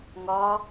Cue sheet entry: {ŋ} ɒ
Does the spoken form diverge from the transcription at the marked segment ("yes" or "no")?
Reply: no